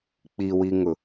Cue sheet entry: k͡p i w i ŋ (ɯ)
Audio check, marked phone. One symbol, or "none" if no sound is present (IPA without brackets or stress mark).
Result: ʊ